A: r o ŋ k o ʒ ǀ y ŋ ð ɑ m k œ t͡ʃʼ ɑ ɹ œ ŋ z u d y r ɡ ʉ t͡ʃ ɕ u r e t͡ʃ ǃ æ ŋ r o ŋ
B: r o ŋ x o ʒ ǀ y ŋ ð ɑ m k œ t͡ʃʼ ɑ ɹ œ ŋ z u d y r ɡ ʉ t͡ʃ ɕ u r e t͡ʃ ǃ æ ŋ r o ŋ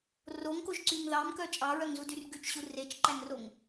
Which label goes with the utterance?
A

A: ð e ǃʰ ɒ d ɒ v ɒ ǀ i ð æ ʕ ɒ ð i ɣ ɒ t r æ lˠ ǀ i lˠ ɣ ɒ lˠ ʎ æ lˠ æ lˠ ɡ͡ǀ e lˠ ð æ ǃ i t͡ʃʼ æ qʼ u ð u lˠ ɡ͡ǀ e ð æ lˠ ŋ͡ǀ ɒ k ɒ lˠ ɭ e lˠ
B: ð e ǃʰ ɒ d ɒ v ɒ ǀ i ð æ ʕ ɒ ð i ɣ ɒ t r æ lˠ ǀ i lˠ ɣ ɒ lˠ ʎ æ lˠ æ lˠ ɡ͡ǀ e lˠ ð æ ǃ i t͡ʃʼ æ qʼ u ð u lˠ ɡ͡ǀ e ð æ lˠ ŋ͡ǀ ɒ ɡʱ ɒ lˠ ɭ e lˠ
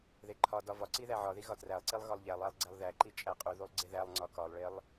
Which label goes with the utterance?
A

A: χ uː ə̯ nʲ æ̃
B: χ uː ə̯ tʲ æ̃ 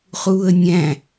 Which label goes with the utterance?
A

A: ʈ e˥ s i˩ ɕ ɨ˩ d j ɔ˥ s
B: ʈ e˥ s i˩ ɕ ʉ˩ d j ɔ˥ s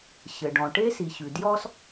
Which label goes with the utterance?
B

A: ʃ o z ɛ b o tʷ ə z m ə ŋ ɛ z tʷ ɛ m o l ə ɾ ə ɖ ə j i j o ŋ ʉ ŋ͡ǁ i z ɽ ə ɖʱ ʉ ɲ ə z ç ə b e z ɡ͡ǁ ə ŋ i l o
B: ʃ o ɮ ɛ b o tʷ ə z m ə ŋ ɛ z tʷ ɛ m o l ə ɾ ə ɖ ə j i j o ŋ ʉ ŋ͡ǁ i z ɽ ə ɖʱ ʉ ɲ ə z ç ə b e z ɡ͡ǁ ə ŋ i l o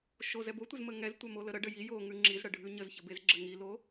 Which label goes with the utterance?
A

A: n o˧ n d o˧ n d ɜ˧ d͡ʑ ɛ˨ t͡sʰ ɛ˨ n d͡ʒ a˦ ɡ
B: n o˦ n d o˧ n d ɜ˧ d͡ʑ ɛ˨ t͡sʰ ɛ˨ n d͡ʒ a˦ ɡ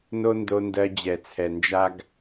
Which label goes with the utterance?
B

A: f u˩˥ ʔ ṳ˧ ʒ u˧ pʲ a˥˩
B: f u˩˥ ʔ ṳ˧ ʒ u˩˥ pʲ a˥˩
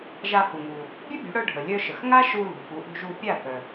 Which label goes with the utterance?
A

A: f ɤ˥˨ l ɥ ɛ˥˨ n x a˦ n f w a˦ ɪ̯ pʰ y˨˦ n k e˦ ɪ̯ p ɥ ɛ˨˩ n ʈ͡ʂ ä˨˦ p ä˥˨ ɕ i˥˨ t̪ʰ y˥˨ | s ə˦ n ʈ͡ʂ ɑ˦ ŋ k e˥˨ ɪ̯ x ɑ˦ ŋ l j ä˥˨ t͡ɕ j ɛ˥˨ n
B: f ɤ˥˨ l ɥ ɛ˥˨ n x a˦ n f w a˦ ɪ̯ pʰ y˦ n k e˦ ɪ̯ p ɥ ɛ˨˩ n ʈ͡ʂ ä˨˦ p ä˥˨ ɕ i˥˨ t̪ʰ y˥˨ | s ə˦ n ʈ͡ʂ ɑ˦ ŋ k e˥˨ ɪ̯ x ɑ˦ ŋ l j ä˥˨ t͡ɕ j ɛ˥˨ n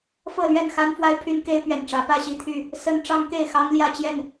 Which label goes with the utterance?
B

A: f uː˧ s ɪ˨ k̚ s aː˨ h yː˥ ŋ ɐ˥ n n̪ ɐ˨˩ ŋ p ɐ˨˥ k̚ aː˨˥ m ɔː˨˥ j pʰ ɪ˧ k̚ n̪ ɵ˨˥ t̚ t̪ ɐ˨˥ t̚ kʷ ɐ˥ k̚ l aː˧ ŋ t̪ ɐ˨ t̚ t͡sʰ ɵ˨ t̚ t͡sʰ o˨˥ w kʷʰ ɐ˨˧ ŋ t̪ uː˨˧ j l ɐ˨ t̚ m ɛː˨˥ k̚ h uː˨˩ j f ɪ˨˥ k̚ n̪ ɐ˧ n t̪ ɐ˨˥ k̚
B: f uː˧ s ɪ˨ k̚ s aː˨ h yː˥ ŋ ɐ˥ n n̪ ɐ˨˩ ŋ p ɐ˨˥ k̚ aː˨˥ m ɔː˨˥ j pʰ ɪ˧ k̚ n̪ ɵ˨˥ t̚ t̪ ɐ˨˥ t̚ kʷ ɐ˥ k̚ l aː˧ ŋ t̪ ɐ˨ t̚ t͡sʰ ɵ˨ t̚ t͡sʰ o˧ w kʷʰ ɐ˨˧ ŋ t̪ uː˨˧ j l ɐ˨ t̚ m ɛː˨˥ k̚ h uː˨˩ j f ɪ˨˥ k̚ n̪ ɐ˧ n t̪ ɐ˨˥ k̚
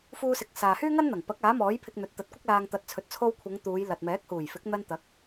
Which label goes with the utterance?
B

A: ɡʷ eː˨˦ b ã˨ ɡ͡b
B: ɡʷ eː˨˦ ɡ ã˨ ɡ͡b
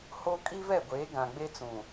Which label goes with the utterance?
B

